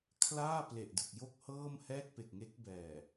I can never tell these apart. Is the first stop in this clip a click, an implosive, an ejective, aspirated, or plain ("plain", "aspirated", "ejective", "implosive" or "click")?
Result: aspirated